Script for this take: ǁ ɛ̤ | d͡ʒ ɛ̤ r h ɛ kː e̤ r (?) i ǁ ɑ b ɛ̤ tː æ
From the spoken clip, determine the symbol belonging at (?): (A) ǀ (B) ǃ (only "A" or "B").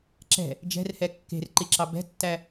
B